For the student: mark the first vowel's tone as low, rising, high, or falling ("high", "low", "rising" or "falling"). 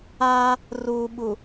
high